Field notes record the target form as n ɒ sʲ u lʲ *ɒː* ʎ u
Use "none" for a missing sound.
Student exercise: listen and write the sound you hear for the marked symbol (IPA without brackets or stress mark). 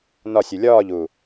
ɒː